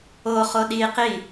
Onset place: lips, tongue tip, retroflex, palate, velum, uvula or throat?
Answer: uvula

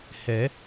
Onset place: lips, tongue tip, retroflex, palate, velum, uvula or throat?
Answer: throat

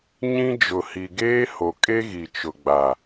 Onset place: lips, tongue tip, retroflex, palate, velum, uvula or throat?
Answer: palate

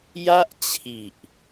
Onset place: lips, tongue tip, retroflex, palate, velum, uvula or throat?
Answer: palate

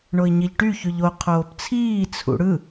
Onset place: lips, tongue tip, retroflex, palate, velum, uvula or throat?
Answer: retroflex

